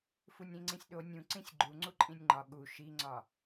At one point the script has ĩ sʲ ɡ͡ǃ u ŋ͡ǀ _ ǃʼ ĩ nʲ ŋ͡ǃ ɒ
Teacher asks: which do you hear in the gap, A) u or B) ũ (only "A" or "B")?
A